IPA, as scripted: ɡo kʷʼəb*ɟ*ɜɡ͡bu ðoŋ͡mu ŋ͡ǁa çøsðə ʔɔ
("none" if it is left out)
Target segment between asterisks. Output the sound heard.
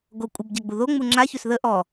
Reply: ɟ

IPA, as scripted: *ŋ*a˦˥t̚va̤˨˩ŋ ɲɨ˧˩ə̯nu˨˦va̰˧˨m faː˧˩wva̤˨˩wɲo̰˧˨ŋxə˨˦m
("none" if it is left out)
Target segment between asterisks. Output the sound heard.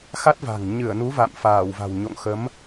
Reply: x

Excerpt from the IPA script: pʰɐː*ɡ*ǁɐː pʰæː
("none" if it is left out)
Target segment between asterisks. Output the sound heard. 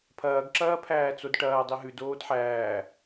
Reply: ɡ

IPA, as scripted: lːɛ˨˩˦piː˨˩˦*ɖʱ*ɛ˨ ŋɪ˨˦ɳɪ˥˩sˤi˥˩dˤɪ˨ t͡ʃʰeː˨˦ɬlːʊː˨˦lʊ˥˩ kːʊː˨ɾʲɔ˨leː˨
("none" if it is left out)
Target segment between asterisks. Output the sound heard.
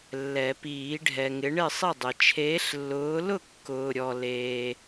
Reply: ɖʱ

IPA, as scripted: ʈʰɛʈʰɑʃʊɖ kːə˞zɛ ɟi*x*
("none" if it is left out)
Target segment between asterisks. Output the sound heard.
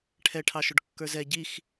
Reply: x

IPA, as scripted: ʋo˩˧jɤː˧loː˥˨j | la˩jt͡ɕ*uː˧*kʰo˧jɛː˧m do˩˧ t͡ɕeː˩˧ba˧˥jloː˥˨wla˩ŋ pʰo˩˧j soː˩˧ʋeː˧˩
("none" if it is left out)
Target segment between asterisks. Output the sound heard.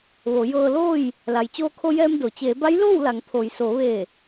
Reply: oː˧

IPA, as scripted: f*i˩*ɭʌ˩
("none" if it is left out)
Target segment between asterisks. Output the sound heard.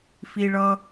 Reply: i˩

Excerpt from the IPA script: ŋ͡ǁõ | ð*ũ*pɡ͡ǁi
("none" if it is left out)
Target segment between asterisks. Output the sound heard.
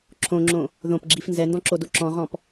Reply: õ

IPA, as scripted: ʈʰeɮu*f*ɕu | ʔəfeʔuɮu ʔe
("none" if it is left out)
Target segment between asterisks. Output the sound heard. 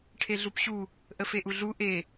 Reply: p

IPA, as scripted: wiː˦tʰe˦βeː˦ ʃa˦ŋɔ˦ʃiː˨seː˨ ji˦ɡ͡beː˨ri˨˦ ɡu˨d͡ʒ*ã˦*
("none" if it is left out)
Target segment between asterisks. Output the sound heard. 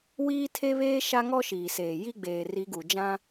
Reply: ã˦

